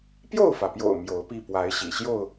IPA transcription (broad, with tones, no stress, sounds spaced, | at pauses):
p j o˥˨ ʊ̯ f ä˩ p j o̰˨˩ ʊ̯ m j o˨˦ ʊ̯ p i˥˨ p w a˨˦ ɪ̯ ɕ ḭ˨˩ ɕ j o˥˨ ʊ̯